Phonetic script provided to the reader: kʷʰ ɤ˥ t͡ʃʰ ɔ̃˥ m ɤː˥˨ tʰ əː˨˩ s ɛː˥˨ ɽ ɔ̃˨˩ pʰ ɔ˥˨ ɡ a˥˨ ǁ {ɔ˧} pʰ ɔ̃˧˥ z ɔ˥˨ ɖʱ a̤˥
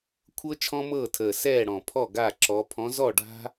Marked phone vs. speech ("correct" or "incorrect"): incorrect